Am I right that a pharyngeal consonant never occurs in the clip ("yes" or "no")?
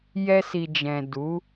yes